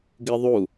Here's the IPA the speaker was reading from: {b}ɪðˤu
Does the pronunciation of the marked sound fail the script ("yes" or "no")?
yes